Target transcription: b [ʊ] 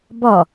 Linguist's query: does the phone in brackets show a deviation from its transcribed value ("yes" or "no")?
yes